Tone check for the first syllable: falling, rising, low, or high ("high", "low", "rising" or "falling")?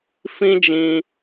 high